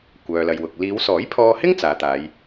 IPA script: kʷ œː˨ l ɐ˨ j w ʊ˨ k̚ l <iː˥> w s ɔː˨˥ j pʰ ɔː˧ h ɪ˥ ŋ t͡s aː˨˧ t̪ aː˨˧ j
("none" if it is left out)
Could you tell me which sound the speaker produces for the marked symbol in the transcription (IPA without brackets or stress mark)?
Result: iː˨˧